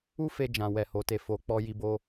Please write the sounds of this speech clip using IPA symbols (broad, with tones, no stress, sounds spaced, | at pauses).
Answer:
u˦ f e˧ d͡ʒ ã˨ w ɛ˨ h o˨ t e˧ f o˧ k͡p ɔ˦ j i˦ b o˦